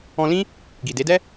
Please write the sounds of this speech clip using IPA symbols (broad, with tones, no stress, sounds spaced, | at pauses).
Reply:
ɔ̃˧ l ĩ˦ | ɡ i˨ d e˨˦ d ɛ˦